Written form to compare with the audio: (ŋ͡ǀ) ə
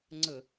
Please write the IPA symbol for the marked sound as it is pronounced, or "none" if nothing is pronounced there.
ŋ͡ǀ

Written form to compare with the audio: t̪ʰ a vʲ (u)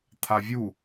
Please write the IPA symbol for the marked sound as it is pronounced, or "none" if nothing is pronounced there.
u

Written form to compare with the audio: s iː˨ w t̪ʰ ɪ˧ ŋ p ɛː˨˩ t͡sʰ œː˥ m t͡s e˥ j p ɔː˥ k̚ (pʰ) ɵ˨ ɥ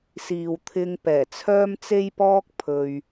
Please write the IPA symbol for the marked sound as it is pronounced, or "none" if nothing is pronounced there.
pʰ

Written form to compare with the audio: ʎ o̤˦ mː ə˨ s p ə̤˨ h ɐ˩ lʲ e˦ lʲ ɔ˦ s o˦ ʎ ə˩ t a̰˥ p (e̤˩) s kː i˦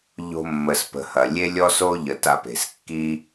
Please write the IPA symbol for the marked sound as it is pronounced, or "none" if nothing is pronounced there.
e̤˩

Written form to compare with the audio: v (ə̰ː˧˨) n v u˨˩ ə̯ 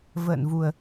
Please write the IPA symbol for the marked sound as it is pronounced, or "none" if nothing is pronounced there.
ə̰ː˧˨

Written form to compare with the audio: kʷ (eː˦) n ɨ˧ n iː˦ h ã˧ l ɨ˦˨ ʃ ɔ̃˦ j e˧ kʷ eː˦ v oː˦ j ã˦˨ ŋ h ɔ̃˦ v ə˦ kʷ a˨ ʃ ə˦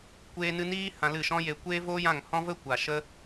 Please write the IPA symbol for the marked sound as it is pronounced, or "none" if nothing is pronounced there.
eː˧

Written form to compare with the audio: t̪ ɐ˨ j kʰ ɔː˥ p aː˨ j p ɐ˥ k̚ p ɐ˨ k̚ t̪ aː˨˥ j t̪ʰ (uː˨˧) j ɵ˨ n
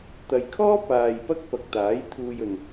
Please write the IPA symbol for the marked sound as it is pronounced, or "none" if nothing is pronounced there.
uː˧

